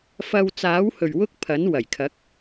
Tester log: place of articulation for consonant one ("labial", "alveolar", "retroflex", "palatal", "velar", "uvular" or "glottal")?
labial